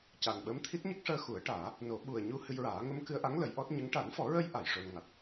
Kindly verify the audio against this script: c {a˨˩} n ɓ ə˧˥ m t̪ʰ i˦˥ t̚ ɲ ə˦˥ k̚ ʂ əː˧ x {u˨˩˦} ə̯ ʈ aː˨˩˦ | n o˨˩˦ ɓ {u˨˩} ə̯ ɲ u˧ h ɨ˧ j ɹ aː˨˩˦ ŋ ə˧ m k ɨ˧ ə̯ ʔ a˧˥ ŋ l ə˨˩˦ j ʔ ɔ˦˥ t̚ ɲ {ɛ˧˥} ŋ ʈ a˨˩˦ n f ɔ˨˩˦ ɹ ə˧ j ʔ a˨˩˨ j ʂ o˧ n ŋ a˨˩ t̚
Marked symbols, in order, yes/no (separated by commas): yes, yes, yes, no